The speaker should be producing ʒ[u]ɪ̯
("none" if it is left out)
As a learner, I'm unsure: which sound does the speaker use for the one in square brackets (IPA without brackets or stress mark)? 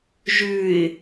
ʉ